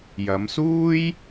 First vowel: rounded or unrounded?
unrounded